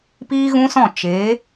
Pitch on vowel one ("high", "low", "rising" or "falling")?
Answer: high